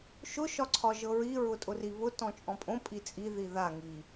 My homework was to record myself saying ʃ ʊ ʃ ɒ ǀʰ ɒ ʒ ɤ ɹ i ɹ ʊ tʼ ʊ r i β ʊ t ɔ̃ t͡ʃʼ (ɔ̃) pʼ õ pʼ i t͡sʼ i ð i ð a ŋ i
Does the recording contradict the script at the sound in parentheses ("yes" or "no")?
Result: no